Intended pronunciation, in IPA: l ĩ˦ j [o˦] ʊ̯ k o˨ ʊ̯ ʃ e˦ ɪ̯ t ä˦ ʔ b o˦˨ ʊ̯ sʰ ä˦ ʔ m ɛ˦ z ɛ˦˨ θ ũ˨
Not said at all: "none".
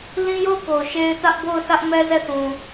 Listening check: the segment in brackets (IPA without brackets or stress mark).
o˦˨